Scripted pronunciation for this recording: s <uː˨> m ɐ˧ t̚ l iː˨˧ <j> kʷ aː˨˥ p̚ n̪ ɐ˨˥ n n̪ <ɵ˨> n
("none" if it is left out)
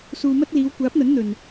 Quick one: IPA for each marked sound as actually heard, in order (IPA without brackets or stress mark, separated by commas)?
uː˨, w, ɵ˨